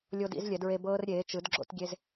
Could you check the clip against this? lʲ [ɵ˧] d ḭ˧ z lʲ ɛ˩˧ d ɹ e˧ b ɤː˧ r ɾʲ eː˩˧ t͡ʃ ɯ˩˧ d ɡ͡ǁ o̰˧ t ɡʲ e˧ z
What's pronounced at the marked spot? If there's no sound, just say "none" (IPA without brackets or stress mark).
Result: o˧